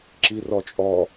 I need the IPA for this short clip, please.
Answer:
ǁirɔt͡ʃʼɔ

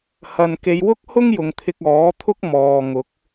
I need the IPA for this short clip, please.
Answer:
hɐ˨nke˨˧j wʊ˥k̚hʊ˥ŋ jʊ˨˧ŋt̪ʰɪ˧k̚ ɔː˨˥t̪ʰʊ˥k̚ mɔː˨ŋʊ˨˥k̚

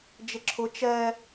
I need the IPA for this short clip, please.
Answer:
d͡ʒɪǁʰʊ t͡ʃɛ

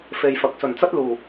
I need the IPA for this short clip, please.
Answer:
fe˨jfɐ˨k̚ sɵ˨˩nt͡sɐ˥t̚ luː˨˩

